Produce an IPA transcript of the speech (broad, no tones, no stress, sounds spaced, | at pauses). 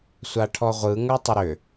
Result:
sʷ a ʈʰ ɔ ʁʷ ɯ ŋ ə˞ tˤ ʏ ɾ ʏ